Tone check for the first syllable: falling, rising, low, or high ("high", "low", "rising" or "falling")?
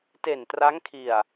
low